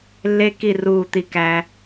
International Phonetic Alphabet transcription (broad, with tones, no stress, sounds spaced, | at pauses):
lː e˦ k i˦˨ r uː˦˨ t̪ i˦ k æ˦